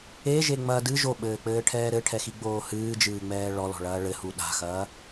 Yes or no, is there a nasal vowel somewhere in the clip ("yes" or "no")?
no